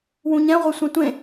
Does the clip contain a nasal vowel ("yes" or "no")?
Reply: yes